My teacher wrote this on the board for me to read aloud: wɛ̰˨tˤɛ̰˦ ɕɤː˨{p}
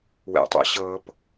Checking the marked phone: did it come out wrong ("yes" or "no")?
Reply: no